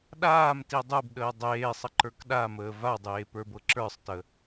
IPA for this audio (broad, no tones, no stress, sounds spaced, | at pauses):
ɗ aː m t i dˤ u b ɗ əː dˤ eː sˤ ə ǃ ə˞ k ɗ a m əː v a dˤ eː p ə˞ b ɤ ǁ ə˞ sˤ t ə